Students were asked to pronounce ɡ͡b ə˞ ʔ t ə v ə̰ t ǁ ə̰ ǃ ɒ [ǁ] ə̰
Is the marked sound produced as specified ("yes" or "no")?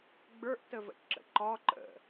no